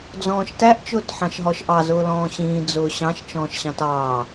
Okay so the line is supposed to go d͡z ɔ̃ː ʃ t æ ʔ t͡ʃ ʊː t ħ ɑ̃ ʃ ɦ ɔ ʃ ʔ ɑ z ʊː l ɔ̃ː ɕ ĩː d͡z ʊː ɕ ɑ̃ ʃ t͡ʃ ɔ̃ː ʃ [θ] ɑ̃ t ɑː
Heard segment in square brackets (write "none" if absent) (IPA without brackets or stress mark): ɕ